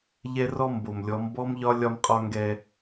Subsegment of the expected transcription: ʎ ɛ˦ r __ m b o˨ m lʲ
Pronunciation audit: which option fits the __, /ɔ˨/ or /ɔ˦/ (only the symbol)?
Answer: ɔ˦